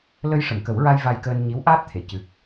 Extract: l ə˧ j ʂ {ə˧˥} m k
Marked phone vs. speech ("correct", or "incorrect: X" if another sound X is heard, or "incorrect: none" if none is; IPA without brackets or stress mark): incorrect: ə˨˩˨